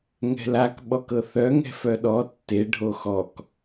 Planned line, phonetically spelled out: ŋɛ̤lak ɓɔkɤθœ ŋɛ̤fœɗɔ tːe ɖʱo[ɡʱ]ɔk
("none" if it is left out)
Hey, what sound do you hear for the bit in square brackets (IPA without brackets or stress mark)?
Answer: x